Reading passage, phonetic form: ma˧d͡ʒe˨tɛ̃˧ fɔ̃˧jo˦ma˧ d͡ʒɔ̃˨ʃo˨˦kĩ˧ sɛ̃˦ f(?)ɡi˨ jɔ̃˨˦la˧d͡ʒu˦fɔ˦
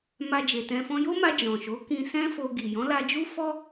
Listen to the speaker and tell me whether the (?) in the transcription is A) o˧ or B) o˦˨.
A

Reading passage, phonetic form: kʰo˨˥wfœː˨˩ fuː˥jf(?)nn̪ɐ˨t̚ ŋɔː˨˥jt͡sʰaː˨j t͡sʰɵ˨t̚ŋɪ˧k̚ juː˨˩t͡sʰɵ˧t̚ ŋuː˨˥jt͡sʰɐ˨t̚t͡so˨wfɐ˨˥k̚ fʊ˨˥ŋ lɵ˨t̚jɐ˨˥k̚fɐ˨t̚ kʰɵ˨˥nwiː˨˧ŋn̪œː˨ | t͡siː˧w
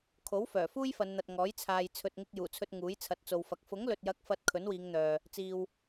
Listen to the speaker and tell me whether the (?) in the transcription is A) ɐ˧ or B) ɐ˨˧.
B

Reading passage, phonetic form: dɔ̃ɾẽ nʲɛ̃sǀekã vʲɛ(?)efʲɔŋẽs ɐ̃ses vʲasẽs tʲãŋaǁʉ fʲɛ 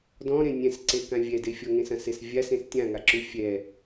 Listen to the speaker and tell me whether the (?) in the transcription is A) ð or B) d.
B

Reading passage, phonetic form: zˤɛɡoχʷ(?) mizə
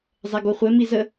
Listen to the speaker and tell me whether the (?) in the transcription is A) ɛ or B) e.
A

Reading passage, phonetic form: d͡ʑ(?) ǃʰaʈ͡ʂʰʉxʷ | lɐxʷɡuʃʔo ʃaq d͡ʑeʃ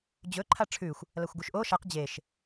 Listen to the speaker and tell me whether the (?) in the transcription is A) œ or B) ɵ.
B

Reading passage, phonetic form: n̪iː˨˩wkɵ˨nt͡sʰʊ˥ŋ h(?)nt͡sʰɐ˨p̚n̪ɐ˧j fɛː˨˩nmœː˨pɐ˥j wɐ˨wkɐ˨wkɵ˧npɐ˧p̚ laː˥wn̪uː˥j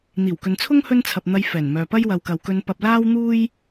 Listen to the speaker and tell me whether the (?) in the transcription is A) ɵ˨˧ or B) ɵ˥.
B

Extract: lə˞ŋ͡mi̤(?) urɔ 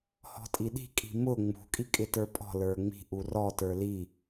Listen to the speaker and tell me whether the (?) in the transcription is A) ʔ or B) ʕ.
A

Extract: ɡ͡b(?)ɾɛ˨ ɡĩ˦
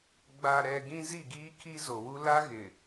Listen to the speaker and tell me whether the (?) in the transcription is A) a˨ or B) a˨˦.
A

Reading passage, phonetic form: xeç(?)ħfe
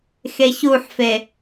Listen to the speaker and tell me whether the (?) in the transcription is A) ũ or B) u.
B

